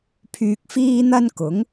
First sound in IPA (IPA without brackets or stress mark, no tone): pʰ